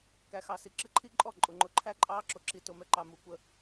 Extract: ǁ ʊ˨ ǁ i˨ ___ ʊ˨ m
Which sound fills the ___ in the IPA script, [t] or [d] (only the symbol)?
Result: t